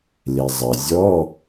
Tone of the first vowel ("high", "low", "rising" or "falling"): low